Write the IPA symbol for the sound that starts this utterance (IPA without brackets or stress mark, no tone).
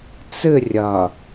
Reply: t͡s